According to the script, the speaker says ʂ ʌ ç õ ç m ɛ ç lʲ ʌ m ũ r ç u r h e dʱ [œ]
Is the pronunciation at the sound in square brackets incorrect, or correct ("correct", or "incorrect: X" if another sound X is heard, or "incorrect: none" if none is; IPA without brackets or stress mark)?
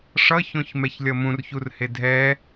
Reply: incorrect: ɛ